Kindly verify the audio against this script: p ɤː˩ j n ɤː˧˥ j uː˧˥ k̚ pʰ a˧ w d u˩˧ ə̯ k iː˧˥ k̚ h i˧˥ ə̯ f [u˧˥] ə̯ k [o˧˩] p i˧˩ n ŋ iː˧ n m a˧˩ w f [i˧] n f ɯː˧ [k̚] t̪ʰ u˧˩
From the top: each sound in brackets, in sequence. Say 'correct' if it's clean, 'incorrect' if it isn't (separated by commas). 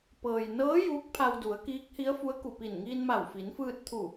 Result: correct, incorrect, incorrect, incorrect